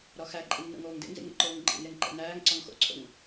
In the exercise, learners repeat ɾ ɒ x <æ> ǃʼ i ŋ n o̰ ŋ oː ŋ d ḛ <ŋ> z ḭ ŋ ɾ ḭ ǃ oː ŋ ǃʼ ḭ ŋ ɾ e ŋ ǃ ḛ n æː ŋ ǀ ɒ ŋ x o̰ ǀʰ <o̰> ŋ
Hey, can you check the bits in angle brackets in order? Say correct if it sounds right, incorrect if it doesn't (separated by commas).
correct, correct, correct